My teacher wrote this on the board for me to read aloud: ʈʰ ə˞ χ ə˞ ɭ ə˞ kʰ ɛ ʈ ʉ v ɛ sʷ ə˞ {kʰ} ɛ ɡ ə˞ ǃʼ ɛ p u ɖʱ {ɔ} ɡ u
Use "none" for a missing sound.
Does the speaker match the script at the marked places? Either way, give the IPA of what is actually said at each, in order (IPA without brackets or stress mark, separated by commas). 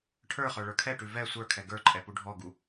kʰ, ɔ